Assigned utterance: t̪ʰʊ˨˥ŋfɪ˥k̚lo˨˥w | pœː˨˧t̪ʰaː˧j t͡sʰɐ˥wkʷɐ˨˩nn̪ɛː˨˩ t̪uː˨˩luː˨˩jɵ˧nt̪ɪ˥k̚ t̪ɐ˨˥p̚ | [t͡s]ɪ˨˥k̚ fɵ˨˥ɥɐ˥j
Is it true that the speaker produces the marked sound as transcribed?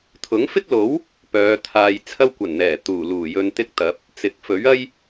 yes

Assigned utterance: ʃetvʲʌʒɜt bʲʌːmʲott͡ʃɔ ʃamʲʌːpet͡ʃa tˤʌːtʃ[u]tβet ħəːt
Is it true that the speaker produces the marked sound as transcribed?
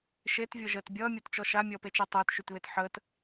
no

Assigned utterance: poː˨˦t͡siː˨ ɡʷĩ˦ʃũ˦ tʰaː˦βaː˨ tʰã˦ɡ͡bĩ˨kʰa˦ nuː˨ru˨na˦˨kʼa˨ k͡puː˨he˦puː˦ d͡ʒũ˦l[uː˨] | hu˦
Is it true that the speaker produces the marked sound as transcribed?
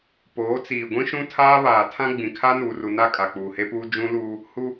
no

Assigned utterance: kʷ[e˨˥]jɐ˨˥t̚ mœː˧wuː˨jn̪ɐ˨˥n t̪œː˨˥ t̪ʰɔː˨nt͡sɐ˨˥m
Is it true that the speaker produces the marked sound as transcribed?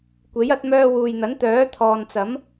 yes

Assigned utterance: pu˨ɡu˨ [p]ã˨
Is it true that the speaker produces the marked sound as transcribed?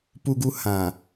no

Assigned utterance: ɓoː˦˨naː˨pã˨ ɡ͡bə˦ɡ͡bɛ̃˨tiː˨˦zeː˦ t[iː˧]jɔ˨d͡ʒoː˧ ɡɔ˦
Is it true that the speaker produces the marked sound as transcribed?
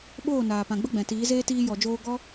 yes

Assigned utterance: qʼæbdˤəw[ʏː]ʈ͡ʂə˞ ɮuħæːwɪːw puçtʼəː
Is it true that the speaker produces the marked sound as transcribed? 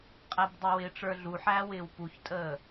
no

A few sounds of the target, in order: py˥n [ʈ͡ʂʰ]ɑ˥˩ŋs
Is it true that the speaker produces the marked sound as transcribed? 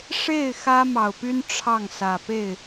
yes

